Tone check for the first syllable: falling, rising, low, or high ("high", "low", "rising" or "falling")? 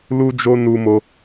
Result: high